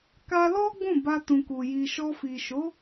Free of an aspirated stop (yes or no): yes